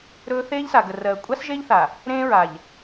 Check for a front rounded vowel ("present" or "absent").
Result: absent